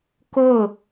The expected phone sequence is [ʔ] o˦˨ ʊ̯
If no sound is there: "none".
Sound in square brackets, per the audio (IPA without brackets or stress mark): k